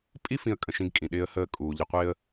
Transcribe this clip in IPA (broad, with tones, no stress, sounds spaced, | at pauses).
pʼ i˦ f ĩ˦ ə̯ kʼ ə̃˨ ʃ ĩ˦ ɡ kʼ ĩ˩ ɗ ɪː˦ ə̯ h əː˦ kʼ uː˩ ʎ ə˦ qʷ ɪː˥ ə̯